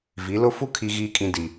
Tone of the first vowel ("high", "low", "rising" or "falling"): rising